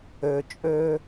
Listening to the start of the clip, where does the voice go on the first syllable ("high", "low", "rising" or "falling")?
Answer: low